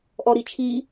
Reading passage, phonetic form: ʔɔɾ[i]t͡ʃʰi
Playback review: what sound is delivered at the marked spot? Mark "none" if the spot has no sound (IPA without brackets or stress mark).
i